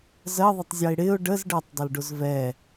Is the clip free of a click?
yes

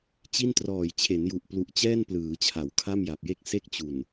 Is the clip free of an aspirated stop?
no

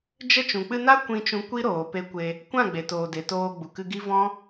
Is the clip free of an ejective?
yes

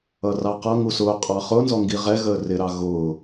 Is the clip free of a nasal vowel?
yes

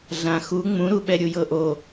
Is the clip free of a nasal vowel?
no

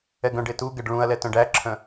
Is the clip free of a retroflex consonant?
no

